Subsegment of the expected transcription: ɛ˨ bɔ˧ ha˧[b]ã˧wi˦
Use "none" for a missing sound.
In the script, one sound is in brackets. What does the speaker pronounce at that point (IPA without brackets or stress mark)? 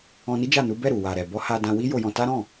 d